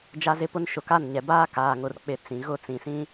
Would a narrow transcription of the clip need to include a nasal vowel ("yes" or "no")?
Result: yes